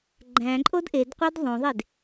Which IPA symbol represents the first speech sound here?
ɡ͡ǃ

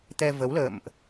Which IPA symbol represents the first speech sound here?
t̪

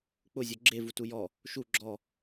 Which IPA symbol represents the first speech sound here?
k͡p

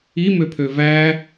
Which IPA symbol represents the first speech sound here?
i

